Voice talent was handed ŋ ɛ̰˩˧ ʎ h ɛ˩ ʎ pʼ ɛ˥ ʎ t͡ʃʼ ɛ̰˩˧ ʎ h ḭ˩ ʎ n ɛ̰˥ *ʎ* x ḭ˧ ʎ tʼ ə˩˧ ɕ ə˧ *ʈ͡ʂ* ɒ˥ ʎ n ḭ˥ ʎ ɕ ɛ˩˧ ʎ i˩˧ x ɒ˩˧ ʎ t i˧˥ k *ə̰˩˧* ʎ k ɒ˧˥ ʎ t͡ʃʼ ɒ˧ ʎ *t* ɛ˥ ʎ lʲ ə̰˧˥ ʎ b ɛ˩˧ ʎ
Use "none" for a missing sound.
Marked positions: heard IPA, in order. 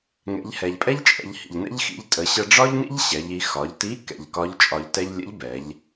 ʎ, ɖ͡ʐ, ɛ̰˩˧, t

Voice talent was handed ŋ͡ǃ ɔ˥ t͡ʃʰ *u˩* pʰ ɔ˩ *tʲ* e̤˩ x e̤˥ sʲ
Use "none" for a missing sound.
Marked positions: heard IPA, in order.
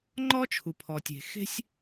u˩, tʲ

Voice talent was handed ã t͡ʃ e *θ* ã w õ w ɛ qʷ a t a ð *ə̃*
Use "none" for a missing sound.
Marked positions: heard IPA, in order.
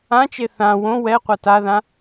θ, ã

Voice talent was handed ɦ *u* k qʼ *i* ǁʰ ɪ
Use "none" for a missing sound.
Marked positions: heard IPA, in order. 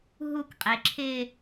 u, e

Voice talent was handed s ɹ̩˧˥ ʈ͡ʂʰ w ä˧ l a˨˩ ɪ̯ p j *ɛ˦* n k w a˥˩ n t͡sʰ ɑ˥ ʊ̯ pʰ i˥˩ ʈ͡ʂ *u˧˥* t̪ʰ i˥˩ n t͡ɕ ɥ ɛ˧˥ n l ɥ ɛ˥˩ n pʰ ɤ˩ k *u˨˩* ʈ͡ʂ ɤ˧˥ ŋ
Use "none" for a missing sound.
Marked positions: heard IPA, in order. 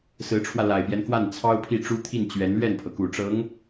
ɛ˦, u˥, u˨˩

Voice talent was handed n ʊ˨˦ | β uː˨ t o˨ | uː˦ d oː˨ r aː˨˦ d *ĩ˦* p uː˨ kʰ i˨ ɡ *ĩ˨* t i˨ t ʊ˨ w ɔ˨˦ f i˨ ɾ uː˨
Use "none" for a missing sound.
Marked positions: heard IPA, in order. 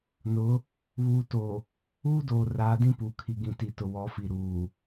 ĩ˦, ĩ˨

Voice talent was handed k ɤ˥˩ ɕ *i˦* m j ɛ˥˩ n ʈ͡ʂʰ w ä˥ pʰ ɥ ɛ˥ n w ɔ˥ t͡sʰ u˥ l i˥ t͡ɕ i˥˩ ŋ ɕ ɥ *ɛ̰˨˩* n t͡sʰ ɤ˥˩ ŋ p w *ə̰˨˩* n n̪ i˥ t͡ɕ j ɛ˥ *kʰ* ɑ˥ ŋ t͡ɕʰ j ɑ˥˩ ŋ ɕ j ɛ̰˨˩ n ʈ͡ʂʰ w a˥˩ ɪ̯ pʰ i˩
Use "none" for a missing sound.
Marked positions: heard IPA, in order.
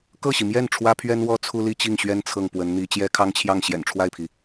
i˩, ɛ˥, ə˧˥, kʰ

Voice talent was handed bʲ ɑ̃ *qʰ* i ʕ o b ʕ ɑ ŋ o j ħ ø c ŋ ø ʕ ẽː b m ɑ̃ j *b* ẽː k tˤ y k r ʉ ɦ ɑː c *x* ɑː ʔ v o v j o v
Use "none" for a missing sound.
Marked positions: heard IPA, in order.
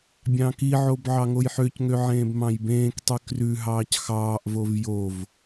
k, b, x

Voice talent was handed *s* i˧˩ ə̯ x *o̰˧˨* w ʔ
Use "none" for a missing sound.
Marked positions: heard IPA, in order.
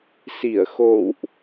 s, o̰˧˨

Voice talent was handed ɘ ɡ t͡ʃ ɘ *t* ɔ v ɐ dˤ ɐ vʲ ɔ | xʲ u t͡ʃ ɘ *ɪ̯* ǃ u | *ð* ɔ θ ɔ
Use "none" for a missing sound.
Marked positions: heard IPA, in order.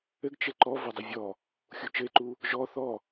ǃ, ɪ̯, ʒ

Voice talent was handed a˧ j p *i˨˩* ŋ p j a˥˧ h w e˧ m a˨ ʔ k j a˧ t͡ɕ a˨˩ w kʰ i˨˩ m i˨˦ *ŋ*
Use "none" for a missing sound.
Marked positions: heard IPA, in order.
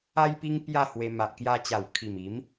i˧, m

